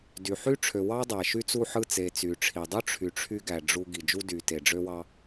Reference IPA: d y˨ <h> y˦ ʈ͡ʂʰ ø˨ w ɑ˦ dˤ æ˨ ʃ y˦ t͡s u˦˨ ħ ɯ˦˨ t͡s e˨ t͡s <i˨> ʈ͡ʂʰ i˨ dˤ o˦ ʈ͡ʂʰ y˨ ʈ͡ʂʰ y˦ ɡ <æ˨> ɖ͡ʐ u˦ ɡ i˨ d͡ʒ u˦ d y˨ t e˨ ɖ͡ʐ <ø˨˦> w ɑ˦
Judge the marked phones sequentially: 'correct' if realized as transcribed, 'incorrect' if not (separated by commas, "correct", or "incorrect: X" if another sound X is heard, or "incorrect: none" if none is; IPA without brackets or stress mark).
incorrect: ħ, incorrect: y˨, correct, incorrect: ø˦